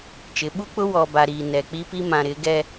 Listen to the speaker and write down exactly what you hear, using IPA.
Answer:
t͡ʃ ɪ˨˦ ɓ u˦ k͡p ʊ˦ w ɔ˨ b a˨ ɾ iː˨ n ɛ˨ k͡p i˦ p i˦ m ã˨ ɾ ɪ˨˦ ɡ ɛ˦

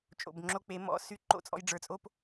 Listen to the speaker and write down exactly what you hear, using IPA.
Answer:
t͡ʃʼ o̰˨ b ŋ͡ǁ o˧ k͡p e˨˦ m ɔ̰˨ s y˦ ǃ o̰˦˨ t͡sʼ ɔ̰˧ j ɖ͡ʐ ə˞˨ t͡sʼ o˦ p

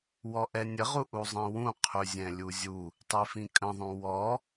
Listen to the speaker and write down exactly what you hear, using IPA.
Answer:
w ɔ ʔ ɛ nʲ ə ʁ u ʔ u zˤ ĩ w ũ qʰ ʉ zʲ ɛ̃ lʲ u zʲ u | tˤ i f ĩ kʼ ə̃ ðˤ ũ w ɔ

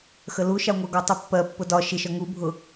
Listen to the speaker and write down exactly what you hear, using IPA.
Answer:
x ə l u ʃ ɑ ŋʷ ɜ ɡ ɔ tˤ u pː ɜ pː ʊ d ɒ ʃ ɪ ʃ ɒ ŋ u bʱ ʊ

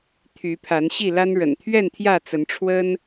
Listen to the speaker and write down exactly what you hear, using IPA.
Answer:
t̪ʰ y˨˦ pʰ a˨˦ n ɕ i˥˨ l a˦ n ɻ ə̰˨˩ n t̪ʰ ɥ ɛ˥˨ n t̪ʰ j ä˥˨ t͡s ə˨˦ n ʈ͡ʂʰ w ə˦ n

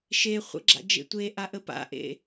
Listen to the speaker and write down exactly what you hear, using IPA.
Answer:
ʃ e χʷ ə̰ ɡ͡ǁ a̰ d͡ʒ ḛ tʷ e ʔ a ʔ ə p a̰ ʔ ḛ

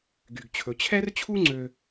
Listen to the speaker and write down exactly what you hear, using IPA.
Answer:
ɡ y˧ ɡ t͡ɕʰ ɵ˧ t͡ɕʰ ɛ˥ r t͡ɕʰ u˥ ŋ͡ǀ ø˧

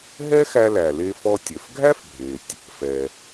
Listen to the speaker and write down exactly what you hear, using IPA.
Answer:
ɦ ɛ˥ x æ˧ l æ˩ l e˧ f ɔ˧ tʲ œ˩ f ɡʱ æ˥ f bʱ e˩ tʲ | f ɛ˩

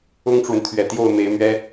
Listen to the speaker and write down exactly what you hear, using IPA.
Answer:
ʊ˥ ŋ ʈ͡ʂ w ə˨ n t̪ʰ ɥ ɛ˨˩ t̪ j o˥˩ ʊ̯ m e˧˥ ɪ̯ m ɥ ɛ˥

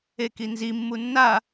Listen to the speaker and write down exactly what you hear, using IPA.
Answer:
e k i n z i mː u nː a

